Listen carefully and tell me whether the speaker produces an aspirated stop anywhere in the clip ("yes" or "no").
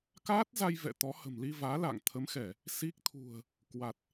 yes